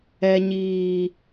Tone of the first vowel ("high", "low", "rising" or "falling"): low